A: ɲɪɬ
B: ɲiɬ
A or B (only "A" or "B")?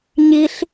B